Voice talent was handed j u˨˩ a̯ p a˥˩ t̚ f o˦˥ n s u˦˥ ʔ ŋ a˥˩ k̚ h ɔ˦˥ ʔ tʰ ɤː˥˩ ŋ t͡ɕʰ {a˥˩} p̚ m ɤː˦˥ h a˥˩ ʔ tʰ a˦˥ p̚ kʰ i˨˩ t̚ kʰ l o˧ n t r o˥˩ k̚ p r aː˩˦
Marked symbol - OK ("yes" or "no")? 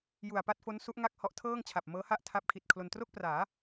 no